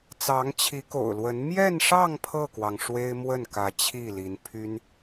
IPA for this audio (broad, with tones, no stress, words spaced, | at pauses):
t͡sɑ˧˥ŋt͡ɕʰi˧˥ko̰˨˩ʊ̯lwə˧˥n mjɛ˥˧nʂɑ˥˧ŋ pʰɤ˥˩kwɑ˩ŋ ʂwe˥ɪ̯mwə˥˩nkä˧˥ t͡ɕʰi˥˩li˧˥npʰy˥n